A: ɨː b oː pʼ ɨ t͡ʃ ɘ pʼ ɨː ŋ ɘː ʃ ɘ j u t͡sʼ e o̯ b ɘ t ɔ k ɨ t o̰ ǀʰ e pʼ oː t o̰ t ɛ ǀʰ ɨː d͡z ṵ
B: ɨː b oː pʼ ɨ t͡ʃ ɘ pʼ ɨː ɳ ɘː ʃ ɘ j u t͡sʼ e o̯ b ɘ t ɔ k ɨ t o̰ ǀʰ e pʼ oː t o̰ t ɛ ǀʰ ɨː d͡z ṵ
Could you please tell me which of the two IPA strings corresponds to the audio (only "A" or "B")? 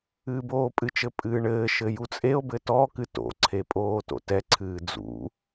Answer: B